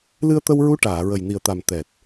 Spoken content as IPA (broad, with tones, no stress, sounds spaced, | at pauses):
l ɨ˧ ə̯ t̪ ə˧ w ɹ u˧˥ ʈ aː˨˩˨ ɹ ə˨˩ j n i˨˩ ə̯ t̪ a˨˩ m t̪ ɛ˨˩ t̚